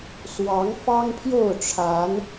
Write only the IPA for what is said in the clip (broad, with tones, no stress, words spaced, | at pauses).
swɑ˨˦ŋfɑ˦ŋpʰjo˥˨ʊ̯ʈ͡ʂʰa˨˦n